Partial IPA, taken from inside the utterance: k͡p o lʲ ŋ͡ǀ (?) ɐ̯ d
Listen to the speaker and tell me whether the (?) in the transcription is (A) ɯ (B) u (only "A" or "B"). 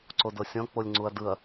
B